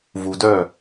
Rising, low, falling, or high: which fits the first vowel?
low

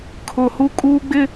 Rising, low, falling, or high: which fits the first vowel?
low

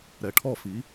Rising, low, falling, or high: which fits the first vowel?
low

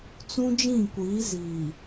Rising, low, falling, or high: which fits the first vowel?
high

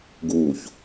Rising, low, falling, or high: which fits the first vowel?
low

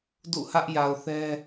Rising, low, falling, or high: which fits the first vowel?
falling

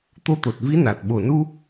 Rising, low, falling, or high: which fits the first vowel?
rising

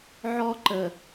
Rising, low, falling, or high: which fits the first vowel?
high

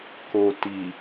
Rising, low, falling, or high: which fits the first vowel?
low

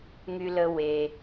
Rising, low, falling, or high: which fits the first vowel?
high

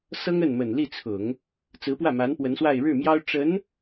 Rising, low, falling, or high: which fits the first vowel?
high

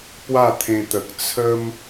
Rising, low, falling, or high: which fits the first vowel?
falling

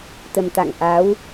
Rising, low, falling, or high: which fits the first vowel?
low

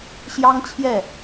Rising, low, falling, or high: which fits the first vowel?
high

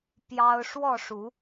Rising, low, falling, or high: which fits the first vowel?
high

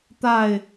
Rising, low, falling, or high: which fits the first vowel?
falling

